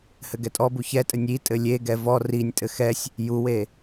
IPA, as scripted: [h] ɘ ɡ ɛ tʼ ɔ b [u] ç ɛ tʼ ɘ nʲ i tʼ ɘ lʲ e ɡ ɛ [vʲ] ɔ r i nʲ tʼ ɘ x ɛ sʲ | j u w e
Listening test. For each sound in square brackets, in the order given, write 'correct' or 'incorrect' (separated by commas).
correct, correct, incorrect